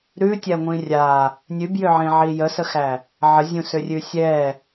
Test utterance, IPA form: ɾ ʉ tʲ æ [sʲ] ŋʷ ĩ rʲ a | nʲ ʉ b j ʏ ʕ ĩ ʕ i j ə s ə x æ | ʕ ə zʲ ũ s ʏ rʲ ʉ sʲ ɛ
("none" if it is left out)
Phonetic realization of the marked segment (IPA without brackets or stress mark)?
none